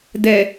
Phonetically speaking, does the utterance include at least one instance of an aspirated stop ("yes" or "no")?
no